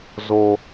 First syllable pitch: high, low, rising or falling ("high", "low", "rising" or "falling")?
high